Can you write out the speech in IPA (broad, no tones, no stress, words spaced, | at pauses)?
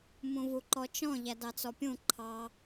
mũvuǃɔt͡ʃɔ̃ ʎædɑt͡sɔpʲũ ǃʰɑ